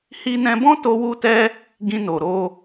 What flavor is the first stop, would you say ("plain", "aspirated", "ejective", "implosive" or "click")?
plain